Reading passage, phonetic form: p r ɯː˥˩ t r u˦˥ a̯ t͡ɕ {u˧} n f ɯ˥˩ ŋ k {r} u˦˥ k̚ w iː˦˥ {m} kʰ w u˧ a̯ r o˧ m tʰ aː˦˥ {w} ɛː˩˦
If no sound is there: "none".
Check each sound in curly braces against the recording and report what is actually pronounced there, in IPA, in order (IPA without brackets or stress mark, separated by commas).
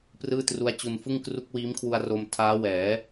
u˧, r, m, w